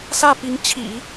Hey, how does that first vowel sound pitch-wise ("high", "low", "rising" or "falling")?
falling